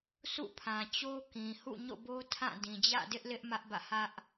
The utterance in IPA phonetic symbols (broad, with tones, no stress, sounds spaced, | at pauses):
s ṵ˦˨ pʰ ã˨ t͡ɕ o˦ k ĩ˨ h ṵ˦˨ ɲ o̰˦˨ b o˦ tʰ ã˦˨ d ĩ˨ d͡ʑ ä̰˦˨ d ɪ˦ ʔ l ɪ˦ ʔ m ä˦ ʔ b ä̰˦˨ h ä˦ ʔ